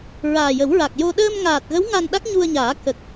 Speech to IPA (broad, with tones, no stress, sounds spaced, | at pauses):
ɹ aː˨˩ j ə˨˩˦ w ɹ a˨˩ k̚ j o˧ ɗ əː˧ m ŋ aː˨˩ t̚ ɣ ə˧˥ w ŋ a˧ n ɗ a˦˥ k̚ ɲ u˧ ə̯ ɲ aː˨˩˦ k ə˨˩ k̚